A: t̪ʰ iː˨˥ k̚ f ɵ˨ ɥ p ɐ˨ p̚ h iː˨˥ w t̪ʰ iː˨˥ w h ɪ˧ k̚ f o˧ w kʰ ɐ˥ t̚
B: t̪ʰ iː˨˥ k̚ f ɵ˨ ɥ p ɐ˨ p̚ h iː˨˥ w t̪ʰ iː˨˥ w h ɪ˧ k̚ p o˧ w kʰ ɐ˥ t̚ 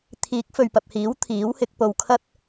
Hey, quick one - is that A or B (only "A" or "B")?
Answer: B